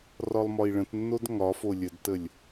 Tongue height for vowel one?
low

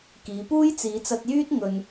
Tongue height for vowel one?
high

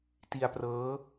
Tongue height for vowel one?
high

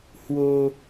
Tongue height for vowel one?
mid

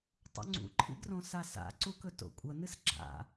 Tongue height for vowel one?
high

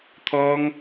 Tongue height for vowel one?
mid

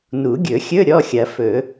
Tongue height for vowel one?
high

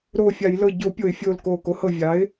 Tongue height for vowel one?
mid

